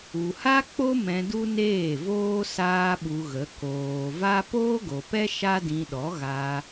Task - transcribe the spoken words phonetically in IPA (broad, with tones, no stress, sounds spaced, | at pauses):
u˨ h a˦ k͡p o˦ m ɛ̃˧ d u˦ n eː˦˨ v oː˦ s aː˦ ɓ u˧ ɣ ə˨˦ k oː˨ v a˦ p oː˦ ɡ o˨ p ɛ˦ ʃ a˦ d ĩ˧ ɗ ɔ˨˦ ɣ aː˧